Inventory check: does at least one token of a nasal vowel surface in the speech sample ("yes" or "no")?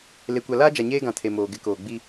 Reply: yes